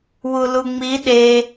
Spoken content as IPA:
w u l u ŋ͡m i ɗ e

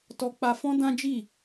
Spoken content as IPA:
t ɔ˧ k͡p a˧ f ɔ̃˦ d ã˦ d͡ʒ i˦˨

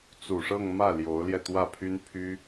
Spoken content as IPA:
t͡s u˨˩ ʂ ɤ˥˧ ŋ m ä˥˩ l j o˧˥ ʊ̯ l j ɛ˧ t̪ w ä˥˩ pʰ y˥ n pʰ y˥

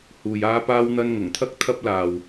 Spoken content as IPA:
h uː˨ j aː˧ p aː˧ w n̪ ɐ˧ n ŋ ʊ˨˩ ŋ t̪ʰ ɐ˥ k̚ t̪ʰ ɐ˧ p̚ l aː˨ w

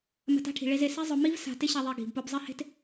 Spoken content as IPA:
m a̤˧ t a̤˥ ʈʰ i̤˩ ɭ e˧ z e˩ s e˥ zˤ ʊ˧ m i˥ v s a̤˧ t ɪ˥ ɕ a˧ ðˤ e˧ ɡ i̤˩ b p ʊ˧ b zˤ ɪ˥ h e̤˥ t

